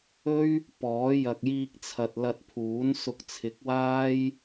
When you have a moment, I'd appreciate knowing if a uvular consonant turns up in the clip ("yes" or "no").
no